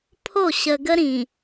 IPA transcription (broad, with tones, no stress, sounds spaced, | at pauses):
pʰ o˦˨ ɕ ə˨ ɡ ə˦ ɾ ĩ˨